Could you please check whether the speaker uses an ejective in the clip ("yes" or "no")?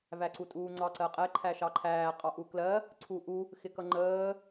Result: yes